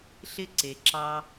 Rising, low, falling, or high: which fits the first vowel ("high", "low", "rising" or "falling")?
high